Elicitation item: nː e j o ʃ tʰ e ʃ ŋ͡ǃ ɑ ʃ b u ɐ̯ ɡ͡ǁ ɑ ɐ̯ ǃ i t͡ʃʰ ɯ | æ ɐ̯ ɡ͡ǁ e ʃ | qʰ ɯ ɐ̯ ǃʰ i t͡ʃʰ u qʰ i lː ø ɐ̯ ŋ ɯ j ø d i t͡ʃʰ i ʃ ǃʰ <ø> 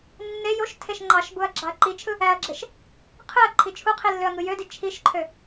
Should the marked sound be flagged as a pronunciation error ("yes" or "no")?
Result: no